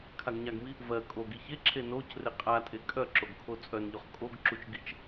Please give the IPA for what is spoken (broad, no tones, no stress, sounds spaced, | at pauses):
kʰ a ɡ ɲ a ɡ m i | v ɜ kʼ o ɡ i ç e ǁʰ e n o c r e qʼ a tʼ e kʼ œ ǁ o ɡ kʰ o t͡sʼ œ n ʎ o χ kʼ o ɡ ǁ u t͡ʃ ɡ i t͡ʃ